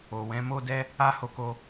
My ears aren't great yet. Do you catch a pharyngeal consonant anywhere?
no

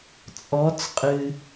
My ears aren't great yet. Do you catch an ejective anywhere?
yes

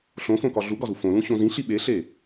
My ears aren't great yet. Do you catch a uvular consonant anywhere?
no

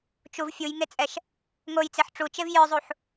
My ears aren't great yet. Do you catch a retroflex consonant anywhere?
yes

